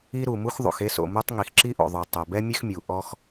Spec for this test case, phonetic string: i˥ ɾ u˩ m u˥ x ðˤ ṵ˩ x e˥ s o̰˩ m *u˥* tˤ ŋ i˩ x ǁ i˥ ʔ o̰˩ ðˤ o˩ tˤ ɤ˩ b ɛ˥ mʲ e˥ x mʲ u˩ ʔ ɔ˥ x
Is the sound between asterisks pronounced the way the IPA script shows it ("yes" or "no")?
yes